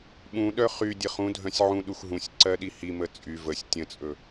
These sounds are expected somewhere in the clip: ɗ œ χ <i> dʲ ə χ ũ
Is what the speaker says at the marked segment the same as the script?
no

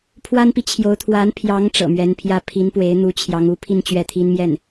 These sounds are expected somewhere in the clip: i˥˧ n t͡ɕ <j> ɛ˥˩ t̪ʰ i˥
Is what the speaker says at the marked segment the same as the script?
no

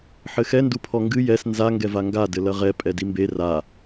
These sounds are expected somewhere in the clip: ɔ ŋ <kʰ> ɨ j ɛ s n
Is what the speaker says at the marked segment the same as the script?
no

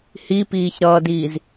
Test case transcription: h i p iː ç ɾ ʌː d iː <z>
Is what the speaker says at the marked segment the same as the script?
yes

